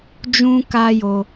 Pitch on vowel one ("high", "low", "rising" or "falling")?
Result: high